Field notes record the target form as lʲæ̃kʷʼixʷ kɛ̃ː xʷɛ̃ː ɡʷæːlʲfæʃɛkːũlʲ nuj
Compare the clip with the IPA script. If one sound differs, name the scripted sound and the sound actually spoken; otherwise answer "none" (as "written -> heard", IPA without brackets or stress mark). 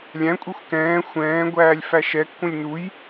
none